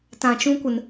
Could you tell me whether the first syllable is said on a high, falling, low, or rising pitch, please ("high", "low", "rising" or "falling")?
low